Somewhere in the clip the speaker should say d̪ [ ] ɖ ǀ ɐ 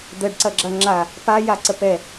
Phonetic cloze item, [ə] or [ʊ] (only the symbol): ə